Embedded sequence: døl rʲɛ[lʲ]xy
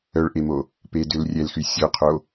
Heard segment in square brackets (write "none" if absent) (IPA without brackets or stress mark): l